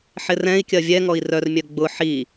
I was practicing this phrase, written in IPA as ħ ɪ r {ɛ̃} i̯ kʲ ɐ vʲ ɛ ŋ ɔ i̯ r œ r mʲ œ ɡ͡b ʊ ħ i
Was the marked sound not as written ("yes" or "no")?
no